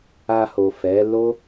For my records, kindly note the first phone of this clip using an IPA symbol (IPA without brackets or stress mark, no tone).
a